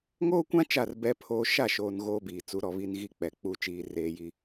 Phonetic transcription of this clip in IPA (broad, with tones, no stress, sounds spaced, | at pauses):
ŋ oː˦ kʷ ã˦ t͡ʃ a˦˨ r b ɛ˦ pʰ oː˦ ʃ a˦˨ ʃ oː˨ n ɣ oː˦ b iː˨ t͡s u˨˦ ɾ ɔ˨ β i˦ n ɣ i˦ k͡p ɛ˨ k͡p u˦˨ t͡ʃ iː˦ r eː˦ j i˦